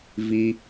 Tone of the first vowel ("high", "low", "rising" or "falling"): high